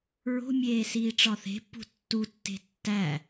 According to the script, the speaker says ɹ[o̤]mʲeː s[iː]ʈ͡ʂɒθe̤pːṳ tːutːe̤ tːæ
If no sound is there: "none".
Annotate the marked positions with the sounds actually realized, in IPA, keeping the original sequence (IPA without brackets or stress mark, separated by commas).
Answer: o̤, iː